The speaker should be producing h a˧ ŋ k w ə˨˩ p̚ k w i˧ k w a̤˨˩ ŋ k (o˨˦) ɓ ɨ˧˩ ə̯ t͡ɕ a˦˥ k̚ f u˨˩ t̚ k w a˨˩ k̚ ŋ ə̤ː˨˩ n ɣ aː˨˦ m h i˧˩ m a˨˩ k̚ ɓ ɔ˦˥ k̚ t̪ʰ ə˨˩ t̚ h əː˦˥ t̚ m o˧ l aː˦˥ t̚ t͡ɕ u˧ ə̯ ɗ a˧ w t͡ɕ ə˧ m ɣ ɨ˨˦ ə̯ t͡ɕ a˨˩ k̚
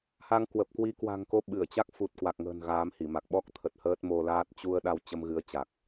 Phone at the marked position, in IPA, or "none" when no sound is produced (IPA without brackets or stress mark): o˨˦